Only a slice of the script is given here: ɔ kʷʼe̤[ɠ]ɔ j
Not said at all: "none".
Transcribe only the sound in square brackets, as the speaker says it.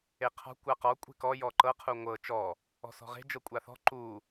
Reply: k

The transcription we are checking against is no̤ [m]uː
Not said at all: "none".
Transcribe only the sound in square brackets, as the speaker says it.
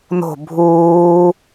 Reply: bʱ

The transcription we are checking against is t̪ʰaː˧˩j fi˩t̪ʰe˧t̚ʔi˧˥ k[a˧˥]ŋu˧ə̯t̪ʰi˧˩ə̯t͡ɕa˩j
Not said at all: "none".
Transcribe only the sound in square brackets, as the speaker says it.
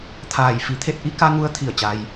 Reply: a˧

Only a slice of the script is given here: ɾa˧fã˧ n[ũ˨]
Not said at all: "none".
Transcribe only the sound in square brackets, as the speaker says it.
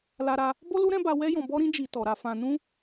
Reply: ũ˦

